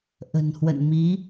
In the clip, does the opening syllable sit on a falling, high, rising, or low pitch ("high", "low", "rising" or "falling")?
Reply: low